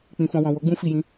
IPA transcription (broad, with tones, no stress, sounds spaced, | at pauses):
k͡p ĩ˨ f ɔ̃˨ w ɔ̃˨ w o˨˦ ɡ͡b ũ˧ f i˨ j ĩ˨˦